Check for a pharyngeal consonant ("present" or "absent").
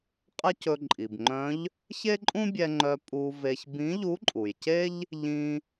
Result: absent